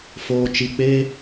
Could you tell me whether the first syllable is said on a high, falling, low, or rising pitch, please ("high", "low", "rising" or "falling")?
low